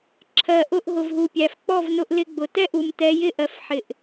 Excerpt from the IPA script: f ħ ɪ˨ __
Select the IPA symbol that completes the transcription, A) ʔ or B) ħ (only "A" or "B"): A